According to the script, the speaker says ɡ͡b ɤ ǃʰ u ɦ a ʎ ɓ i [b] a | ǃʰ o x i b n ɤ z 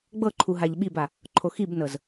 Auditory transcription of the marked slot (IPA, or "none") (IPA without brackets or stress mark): b